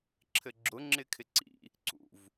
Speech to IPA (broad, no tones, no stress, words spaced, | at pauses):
ǁʰɘɡ͡ǁʊ ŋ͡ǁɪkʰɪǀḭ | ǀṵv